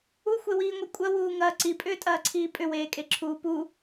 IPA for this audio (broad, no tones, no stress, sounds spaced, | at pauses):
u xʷ e w iː ŋʷ e kʷʼ ɐ w uː ŋ ɐː ǀ i pʼ ʏː tʼ ɐː ǀʰ iː pʼ ʏ w eː kʼ e ǁʰ uː p u